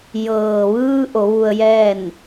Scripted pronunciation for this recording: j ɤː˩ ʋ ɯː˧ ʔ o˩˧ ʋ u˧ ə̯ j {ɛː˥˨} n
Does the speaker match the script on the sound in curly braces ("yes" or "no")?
yes